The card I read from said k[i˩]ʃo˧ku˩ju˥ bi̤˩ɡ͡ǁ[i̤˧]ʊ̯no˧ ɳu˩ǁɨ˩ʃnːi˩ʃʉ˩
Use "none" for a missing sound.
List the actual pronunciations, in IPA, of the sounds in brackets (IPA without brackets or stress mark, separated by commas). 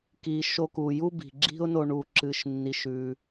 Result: i˩, i̤˥